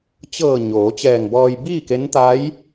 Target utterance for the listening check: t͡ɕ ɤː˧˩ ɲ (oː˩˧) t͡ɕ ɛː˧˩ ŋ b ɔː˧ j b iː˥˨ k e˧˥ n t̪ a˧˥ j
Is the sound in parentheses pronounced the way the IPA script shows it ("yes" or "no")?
yes